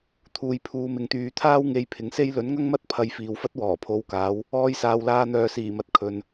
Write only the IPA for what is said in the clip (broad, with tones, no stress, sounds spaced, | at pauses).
t̪ʰ uː˨ j pʰ uː˨˧ m ɪ˨ ŋ t̪ yː˨ t̪ʰ aː˥ w ŋ e˧ j pʰ ɪ˨˥ ŋ s e˥ j l ɵ˨˥ n ŋ ɐ˥ ŋ m ɐ˥ t̚ pʰ ɐ˧ j f iː˨ w f ɐ˥ t̚ w ɔː˨˩ pʰ o˨˧ w k aː˨˧ w | ɔː˧ j s aː˨ w l aː˧ n̪ œː˨ s iː˨˩ m ɐ˨ t̚ kʰ ɵ˨ n